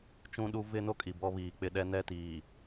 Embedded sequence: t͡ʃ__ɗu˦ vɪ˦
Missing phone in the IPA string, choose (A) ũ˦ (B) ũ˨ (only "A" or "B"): A